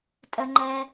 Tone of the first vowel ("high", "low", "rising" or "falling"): high